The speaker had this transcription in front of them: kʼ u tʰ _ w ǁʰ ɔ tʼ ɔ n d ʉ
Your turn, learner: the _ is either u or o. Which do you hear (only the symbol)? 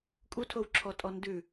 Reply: o